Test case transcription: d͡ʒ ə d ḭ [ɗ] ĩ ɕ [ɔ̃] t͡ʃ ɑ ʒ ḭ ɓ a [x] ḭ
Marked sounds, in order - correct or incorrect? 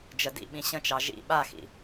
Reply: incorrect: ɓ, incorrect: ə̃, correct

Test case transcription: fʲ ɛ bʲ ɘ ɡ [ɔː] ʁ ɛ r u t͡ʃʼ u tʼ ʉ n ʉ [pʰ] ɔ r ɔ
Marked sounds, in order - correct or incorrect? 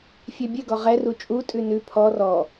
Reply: incorrect: ɔ, correct

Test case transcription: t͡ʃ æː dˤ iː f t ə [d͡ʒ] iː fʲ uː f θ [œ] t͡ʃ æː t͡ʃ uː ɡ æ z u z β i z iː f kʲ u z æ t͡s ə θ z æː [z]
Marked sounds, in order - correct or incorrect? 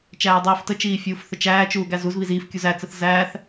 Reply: incorrect: t͡ʃ, incorrect: ə, incorrect: θ

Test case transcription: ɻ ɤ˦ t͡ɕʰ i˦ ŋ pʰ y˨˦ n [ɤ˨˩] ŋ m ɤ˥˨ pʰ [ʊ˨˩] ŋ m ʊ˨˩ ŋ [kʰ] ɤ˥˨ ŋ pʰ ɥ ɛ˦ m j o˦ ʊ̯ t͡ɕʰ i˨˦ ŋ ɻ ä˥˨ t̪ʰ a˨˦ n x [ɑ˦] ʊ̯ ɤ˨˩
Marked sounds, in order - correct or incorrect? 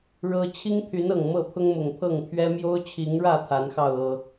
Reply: correct, incorrect: ʊ˦, incorrect: pʰ, incorrect: ɑ˥˨

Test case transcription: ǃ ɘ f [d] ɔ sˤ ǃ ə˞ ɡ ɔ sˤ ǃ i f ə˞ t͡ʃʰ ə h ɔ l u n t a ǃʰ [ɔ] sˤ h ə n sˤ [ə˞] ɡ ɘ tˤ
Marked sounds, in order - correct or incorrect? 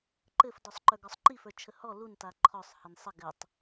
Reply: correct, correct, incorrect: ə

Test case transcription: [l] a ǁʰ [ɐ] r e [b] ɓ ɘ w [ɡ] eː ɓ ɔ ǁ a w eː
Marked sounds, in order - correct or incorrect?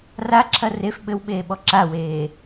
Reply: incorrect: r, correct, incorrect: f, incorrect: ɓ

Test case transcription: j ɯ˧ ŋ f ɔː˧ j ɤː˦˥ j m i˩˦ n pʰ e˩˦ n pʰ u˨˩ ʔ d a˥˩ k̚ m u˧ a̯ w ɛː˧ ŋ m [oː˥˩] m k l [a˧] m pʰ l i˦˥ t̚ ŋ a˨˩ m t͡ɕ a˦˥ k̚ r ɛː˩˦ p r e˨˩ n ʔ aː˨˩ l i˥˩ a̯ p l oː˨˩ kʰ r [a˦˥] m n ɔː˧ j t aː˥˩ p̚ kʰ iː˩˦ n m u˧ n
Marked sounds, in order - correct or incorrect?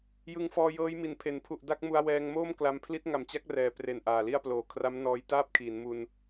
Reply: correct, correct, correct

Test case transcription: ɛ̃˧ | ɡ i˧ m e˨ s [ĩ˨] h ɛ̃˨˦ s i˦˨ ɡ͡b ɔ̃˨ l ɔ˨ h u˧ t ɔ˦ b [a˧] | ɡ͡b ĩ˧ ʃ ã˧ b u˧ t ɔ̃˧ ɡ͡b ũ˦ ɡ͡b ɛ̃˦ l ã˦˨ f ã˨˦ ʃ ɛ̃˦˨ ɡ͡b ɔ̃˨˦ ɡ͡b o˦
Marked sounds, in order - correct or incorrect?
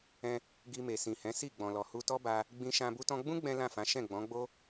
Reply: correct, correct

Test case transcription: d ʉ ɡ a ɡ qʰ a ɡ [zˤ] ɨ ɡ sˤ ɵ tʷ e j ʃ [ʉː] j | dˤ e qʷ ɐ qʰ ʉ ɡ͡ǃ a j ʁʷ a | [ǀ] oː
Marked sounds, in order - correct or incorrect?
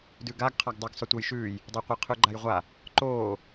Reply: incorrect: dˤ, correct, incorrect: ǃ

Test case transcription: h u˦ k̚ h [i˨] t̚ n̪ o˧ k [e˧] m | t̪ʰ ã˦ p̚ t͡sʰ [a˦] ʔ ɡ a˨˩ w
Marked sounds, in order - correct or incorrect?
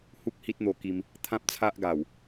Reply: incorrect: i˦, incorrect: i˧, correct

